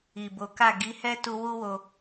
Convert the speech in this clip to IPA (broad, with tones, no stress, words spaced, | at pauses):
i˨bo˨˦ka˦˨ ɡi˨˦hɛ˦ tu˧wu˦wo˧